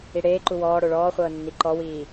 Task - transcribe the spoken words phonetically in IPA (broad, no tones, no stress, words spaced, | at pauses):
iɽeːǃu wɔːɽo ɭɔːχʷɤː nːiǃɔwiː